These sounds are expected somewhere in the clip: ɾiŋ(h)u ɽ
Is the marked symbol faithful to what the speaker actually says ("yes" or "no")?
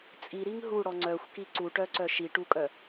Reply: no